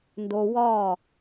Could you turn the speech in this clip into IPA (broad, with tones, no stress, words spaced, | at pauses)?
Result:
ndo˧wɒː˦˨